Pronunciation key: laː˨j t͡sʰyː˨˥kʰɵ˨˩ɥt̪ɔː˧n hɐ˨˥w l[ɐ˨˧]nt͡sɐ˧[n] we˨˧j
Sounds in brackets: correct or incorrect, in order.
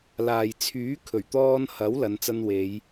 correct, correct

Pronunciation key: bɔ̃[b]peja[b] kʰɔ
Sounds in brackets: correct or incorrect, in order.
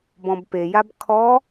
correct, correct

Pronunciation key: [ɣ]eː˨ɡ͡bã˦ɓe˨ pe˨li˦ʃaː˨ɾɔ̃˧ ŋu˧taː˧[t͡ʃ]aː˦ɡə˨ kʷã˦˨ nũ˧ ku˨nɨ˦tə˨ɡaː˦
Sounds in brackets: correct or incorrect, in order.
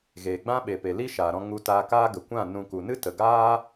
correct, incorrect

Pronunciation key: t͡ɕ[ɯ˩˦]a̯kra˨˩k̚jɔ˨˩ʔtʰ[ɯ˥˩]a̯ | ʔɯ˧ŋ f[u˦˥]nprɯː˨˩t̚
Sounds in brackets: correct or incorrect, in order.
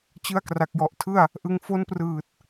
incorrect, correct, incorrect

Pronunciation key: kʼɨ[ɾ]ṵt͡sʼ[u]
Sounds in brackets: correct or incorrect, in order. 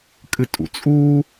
incorrect, correct

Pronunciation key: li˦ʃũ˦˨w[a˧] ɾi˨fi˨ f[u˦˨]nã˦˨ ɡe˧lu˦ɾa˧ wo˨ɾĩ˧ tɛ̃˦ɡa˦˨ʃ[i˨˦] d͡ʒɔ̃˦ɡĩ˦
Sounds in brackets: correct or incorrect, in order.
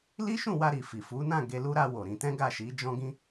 correct, incorrect, correct

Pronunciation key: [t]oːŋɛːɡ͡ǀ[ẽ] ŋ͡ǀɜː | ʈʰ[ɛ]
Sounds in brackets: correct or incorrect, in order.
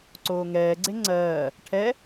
incorrect, incorrect, correct

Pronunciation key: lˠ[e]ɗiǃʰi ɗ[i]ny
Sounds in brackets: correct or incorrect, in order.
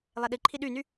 correct, incorrect

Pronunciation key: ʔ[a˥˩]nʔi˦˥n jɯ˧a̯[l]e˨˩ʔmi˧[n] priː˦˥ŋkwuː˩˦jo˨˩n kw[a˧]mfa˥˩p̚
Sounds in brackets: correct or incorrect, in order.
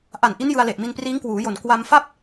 incorrect, correct, correct, correct

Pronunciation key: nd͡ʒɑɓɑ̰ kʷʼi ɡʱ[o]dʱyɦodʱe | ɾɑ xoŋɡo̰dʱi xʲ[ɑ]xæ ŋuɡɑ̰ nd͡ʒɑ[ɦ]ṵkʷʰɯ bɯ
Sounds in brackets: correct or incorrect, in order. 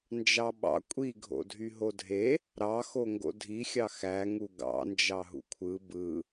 incorrect, correct, correct

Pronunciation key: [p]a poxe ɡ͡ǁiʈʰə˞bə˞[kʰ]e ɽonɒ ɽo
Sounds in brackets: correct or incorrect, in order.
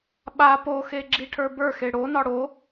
incorrect, incorrect

